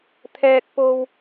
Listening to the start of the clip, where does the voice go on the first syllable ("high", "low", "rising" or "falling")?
high